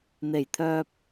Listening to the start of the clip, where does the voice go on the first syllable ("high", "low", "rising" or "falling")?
low